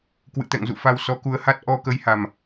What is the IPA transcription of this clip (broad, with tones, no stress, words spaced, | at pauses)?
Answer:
kwɨ̰˧˨t̪ɛ̰˧˨ŋzṵ˧˨fa˧w sɔ˨˦ku˨˦ə̯ha˦˥t̚ ʔɔ˧kə˨˦jha˨˩m